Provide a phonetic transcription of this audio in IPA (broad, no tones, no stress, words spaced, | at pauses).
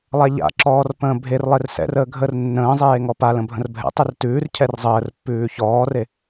lˠaʎa̰ǁɔːr pə̃ːbʱerlˠer sɛ̰rəː ɡʱər nːə̃ːzˤeː ŋɔpalə̃ bʱə̃rbʱɛ̰tˤʉr tʉːrcʰɛr zˤəːr pːʉːçɔːre